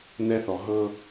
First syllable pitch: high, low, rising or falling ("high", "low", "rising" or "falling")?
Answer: high